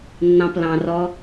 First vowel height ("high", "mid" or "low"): low